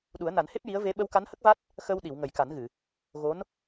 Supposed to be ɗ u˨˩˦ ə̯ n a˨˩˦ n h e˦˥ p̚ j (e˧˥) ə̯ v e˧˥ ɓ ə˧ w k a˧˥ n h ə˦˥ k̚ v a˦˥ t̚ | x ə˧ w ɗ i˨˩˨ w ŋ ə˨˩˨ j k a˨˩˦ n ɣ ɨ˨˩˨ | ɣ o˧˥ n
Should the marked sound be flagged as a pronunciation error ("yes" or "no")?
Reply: yes